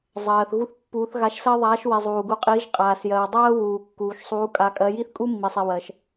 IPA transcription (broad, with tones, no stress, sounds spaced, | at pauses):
zˤ ɜː˨ θ ɣ u˥ θ pː uː˧˥ θ ɣ a˧˥ ʃ s ɜ˥ ðˤ aː˧˥ ʃ w i˨ zˤ uː˨ ɡ u˧˥ qʼ iː˧˥ ʒ qʼ aː˨ s j ɜː˨ dˤ ɜː˥ w uː˨ kː uː˨ ʃ sˤ uː˧˥ kʼ a˧˥ kʼ ɜ˧˥ j i˥ θ kʼ u˥ mː i˨ sˤ i˨ w ɜ˨ ʃ